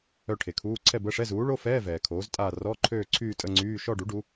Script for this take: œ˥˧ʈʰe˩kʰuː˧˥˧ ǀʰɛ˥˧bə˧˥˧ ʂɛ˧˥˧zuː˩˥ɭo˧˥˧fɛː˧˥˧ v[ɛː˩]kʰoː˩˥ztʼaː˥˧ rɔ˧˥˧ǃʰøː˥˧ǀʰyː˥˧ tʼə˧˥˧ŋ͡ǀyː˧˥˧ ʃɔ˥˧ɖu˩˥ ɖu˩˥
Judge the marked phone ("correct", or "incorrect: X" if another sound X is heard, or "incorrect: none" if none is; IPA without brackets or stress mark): correct